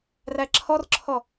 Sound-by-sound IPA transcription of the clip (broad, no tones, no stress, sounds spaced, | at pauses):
r æ ǁʰ ɔ r ǁʰ ɔ